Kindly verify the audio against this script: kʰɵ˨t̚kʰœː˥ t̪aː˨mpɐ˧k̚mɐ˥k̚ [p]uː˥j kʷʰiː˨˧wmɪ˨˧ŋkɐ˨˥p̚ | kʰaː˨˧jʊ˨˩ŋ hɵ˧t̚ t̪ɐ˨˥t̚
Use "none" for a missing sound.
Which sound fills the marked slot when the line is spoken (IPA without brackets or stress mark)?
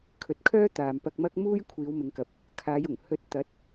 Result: m